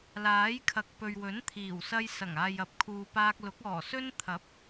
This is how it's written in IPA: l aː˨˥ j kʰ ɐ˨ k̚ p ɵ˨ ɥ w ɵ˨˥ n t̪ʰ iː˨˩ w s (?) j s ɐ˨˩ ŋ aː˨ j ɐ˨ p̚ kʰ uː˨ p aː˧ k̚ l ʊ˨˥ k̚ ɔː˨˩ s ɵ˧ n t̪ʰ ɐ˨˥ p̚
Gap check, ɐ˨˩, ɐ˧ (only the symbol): ɐ˧